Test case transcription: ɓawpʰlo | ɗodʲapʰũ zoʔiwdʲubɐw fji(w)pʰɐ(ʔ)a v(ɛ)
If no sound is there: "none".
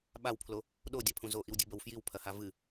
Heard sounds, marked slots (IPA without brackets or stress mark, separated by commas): w, h, ɨ